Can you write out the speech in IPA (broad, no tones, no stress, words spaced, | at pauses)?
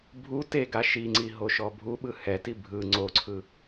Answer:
bʱu teɡa ʃiŋ͡ǀi ɦoʃɔbʱuɓɯ hɛti bʱɯ ŋ͡ǀoǀʰɯ